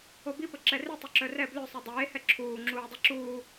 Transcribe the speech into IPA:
o b i p ə ǁ ɛ r i tˤ u ǁ œ r ɛ b l ø sˤ i dˤ eː h ɛ ǁʰ uː ŋ͡ǁ uː dˤ i ǁ uː

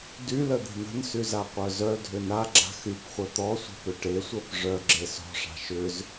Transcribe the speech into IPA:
d y l ə d̪ e̤ n̪ ə̤ n s y z a qʷ œ z œ dʱ ʏ n a ɡ͡ǁ a̤ x y p χʷ œ t̪ ɔ sʷ e̤ p ʏ ʈ e sʷ ɜ p ʐ œ ɡ͡ǁ e s ɔ̤ ʂ a̤ ʃ ʏ z

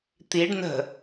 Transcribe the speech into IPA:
t̪ i ɖ n ə̤

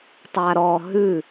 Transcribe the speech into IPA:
tˤ a ɾ ɔ ɦ ʉ

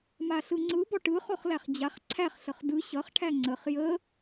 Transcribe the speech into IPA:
m a ɬ ɯ ŋ͡ǀ ɯ b ɔ ʈ ɯ χ ɔ χ l æ χ d͡ʑ a χ ǀʰ æ χ ɬ ə χ d ɯ ɕ ʌ χ ʈʰ æ ŋ͡ǀ ə χ j ə

